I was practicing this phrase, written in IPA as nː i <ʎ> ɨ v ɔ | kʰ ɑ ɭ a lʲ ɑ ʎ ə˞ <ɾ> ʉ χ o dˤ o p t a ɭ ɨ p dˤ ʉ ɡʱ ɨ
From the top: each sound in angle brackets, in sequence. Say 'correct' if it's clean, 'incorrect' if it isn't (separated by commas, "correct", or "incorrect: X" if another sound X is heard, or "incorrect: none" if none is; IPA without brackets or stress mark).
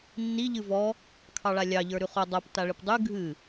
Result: correct, correct